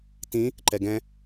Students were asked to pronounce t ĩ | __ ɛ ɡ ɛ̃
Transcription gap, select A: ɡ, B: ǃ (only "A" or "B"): B